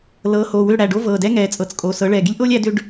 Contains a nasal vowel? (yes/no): no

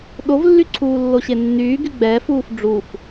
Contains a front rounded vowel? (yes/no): yes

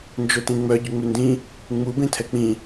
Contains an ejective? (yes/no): no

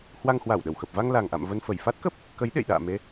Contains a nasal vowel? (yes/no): no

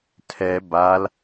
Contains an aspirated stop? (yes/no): yes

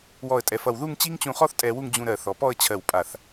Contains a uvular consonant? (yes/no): yes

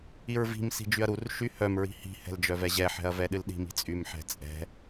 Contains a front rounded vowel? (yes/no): yes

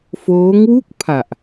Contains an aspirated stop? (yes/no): yes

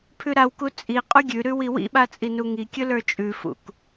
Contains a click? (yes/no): no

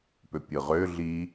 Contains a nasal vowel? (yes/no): no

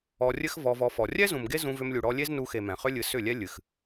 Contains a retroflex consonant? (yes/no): yes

